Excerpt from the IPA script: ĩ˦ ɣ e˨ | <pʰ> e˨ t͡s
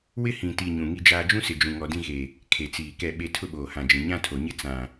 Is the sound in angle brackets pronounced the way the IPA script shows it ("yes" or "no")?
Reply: no